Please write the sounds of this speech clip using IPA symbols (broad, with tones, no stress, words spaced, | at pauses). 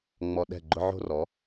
ŋ͡mɔ˧ ɗɛ̤˦˨ɡ͡ǃʊ˦ ʕo̤˦rɔ˨˦